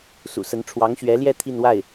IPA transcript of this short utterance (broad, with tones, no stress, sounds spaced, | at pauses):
s ṵ˨˩ s ə˧˥ n ʈ͡ʂʰ w ɑ˧˥ ŋ ɕ ɥ ɛ˧˥ l j ɛ˥˧ t̪ʰ i˥˧ n w a˥˩ ɪ̯